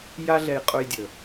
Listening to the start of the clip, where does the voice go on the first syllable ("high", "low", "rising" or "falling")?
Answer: high